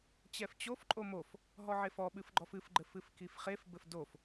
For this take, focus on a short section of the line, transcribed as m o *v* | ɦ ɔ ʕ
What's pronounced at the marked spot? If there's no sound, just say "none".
f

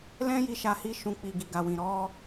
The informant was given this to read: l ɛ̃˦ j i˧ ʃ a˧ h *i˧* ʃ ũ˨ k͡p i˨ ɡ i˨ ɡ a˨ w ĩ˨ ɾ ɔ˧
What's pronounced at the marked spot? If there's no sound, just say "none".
i˧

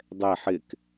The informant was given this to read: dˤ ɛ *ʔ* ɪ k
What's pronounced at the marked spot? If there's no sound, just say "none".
ħ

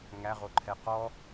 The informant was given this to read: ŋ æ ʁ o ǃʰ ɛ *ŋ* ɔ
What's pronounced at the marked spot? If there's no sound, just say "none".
q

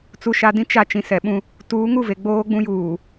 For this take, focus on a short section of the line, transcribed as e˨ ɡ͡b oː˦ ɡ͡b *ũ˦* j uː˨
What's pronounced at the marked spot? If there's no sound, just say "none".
ũ˦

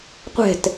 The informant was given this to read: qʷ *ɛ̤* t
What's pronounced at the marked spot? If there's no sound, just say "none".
ɛ̤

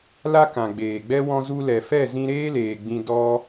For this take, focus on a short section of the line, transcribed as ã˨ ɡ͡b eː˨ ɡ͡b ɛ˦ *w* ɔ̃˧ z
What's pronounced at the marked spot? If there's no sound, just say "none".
w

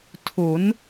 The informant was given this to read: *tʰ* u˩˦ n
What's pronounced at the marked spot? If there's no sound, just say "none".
tʰ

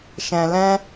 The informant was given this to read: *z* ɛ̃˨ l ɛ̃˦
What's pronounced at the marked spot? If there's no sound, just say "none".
ʃ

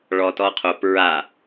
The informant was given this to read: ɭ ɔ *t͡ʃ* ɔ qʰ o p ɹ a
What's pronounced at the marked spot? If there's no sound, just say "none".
t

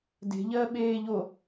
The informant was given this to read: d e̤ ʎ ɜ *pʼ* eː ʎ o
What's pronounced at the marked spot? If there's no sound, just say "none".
ɓ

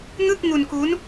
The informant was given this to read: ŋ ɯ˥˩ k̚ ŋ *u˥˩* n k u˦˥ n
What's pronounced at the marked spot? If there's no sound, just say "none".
u˧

